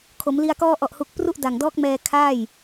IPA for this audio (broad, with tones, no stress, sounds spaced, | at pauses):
kʰ o˩˦ m l i˧ a̯ k ɔː˧ ʔ ɔ˨˩ ʔ h u˨˩ k̚ p r u˥˩ ʔ d a˨˩ ŋ d ɔː˦˥ k̚ m ɛː˧ kʰ aː˥˩ j